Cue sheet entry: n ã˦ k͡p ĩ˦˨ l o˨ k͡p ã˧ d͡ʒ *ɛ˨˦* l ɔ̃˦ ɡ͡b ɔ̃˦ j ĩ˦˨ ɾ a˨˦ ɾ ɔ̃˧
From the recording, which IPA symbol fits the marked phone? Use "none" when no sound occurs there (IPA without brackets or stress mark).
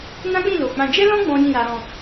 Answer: ɛ˦